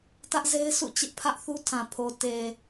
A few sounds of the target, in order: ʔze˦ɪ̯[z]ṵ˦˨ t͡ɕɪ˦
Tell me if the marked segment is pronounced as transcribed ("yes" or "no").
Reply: no